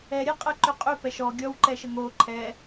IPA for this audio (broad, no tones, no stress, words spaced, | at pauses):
ɛɾʲeqʼɛǃʏ qʼʏpɛ ʃɔ ɡʲɔwǃɛʃə ŋo ǃʰɛ